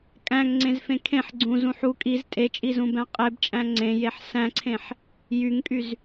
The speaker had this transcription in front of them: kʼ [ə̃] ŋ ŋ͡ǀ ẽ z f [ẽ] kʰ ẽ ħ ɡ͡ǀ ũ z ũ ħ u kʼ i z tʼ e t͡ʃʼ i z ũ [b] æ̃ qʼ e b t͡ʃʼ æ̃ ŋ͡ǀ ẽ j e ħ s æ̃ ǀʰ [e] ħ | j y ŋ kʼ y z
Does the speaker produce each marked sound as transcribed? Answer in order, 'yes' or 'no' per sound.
no, yes, yes, no

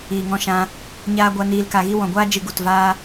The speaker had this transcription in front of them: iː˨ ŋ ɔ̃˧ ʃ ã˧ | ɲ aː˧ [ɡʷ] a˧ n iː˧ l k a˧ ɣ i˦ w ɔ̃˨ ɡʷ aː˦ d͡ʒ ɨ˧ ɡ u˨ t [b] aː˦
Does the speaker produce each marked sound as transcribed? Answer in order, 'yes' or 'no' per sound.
yes, no

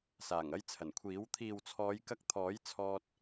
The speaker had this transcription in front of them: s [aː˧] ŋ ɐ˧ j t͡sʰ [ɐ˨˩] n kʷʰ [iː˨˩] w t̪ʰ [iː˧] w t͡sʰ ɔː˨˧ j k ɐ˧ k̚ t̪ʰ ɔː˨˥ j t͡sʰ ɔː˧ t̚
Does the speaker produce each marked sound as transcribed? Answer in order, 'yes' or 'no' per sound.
no, yes, no, no

